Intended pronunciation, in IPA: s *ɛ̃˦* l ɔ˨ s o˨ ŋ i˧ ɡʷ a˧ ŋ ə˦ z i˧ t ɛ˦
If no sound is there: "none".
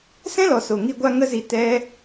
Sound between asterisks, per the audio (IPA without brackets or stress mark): ɛ̃˦